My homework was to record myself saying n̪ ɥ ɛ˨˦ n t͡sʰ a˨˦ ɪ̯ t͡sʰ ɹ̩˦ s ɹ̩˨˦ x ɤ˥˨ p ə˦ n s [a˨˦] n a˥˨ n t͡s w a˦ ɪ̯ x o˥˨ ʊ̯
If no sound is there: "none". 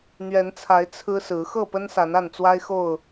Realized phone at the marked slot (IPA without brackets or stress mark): a˨˦